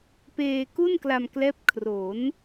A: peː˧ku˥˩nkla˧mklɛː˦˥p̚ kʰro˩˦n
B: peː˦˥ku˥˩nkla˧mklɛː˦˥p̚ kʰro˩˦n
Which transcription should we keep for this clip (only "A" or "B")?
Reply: A